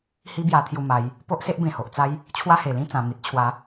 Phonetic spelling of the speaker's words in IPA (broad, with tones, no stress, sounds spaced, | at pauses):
h i˦ b j a˧ t̪ʰ j u˧ m a˨˦ j | p o˦ ʔ s e˦ ʔ b ẽ˨˩ h o˨ ʔ t͡s a˦ j | t͡ɕʰ w a˥˧ h e˨˩ l ĩ˥˧ t͡s ã˨˩ m i˨ t̚ t͡ɕʰ w a˨˦